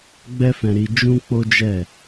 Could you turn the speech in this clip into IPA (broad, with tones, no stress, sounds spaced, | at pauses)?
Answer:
ɡ͡b ɛ˦ f ɛ̃˧ ɾ i˧ d͡ʒ ũ˦ k͡p o˦ d͡ʒ ɛ˦˨